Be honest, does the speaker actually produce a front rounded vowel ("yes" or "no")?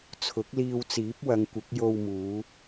no